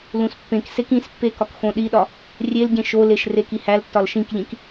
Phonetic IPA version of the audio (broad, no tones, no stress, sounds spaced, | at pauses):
l ũ s pː ẽ k s e k ĩ s pː e k ɒ k x õ ɗ i ɗ ɒ | rʲ e l ɟ ẽ ʃ o l e ʃ r e k i h æ l tː ɒ l ʃ ĩ k ʎ ĩ k